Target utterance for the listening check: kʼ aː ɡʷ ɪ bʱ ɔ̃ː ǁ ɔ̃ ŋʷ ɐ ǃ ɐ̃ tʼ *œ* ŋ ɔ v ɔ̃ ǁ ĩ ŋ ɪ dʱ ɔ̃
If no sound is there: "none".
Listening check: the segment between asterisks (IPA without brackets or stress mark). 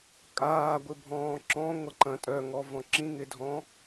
œ